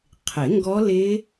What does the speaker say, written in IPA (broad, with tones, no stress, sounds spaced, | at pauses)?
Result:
qʰ ɪ˨˩˦ ŋ ɡ ɔ˦˥ l ɪ˦˥